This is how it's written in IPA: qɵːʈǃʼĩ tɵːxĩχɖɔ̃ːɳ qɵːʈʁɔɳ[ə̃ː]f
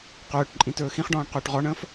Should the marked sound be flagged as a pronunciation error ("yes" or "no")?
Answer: no